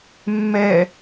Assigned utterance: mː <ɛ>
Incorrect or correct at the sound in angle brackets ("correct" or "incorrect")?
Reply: correct